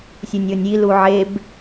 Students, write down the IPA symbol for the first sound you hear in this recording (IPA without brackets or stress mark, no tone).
sʲ